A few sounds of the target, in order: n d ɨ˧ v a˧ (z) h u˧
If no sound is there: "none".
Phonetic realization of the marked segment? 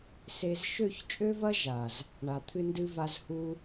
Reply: z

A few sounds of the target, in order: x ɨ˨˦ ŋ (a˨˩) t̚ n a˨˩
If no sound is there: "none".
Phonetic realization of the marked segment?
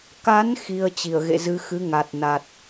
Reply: a˨˩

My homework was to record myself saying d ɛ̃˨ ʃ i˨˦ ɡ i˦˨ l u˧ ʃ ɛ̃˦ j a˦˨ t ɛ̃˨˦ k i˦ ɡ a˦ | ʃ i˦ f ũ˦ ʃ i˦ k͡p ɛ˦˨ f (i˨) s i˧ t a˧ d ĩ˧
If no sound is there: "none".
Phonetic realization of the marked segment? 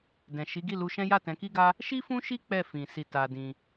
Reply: ĩ˨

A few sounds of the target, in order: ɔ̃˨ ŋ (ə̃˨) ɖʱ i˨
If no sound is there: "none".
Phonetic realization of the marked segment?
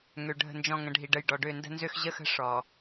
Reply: ə̃˨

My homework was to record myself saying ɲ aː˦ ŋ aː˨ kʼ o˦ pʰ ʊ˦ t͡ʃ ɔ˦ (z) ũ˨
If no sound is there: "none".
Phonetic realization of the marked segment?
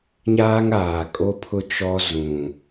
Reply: z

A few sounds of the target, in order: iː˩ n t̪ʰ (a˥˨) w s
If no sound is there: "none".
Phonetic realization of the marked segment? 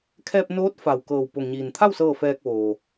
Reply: a˥˨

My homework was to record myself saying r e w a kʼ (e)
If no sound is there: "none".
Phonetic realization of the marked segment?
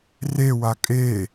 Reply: e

